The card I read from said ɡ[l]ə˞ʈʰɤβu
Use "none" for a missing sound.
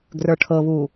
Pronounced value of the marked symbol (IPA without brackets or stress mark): r